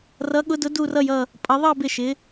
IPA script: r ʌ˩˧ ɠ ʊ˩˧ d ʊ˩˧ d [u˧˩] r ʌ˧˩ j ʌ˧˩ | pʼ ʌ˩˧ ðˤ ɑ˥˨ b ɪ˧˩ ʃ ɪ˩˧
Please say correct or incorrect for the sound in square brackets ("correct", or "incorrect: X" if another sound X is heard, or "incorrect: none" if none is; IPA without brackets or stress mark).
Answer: correct